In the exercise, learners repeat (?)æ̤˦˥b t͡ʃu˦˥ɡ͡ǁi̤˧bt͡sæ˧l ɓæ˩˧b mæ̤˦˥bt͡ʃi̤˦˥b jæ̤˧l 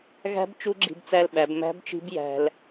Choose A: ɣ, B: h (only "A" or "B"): A